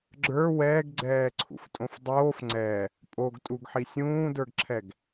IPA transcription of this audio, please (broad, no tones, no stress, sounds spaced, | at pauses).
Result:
ɡ͡ǁ ə˞ w ɛː ɡ ɡ͡ǀ ɛː ǀʰ ṵ f tʼ õ f dˤ oː f ŋ͡ǀ ɛ | pʼ o ɡ tʼ u ɡ ħ i sʲ ũː d ə˞ ɡ ǁʰ ɛ ɡ